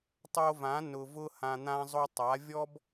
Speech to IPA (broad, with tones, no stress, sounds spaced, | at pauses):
tˤ o˧ v ã˨˦ n ʊ˨ v ʊ˧ h ã˧ n̪ ã˦ zˤ o˦ tˤ a˨˦ vʲ ɔ˦ b